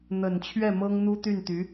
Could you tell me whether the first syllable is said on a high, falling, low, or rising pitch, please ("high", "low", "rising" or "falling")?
low